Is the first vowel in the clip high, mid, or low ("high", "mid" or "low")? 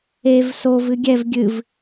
mid